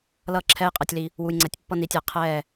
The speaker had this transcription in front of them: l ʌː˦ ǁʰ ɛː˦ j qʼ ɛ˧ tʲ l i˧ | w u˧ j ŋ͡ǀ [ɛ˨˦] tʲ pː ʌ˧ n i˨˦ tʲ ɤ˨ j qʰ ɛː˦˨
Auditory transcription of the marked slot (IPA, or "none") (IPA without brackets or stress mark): ɛ˨˦